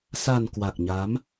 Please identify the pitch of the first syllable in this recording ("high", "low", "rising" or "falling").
low